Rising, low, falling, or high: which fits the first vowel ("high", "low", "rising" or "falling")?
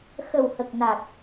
low